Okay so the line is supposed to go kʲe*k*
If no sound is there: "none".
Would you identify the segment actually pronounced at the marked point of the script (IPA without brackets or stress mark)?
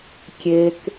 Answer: k